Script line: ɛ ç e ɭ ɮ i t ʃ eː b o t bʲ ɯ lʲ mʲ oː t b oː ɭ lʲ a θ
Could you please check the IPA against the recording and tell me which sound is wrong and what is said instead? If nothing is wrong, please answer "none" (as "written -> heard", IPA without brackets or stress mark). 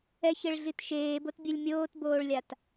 θ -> t